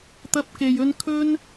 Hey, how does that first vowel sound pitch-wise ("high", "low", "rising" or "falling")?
high